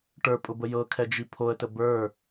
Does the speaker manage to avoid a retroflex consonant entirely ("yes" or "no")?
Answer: no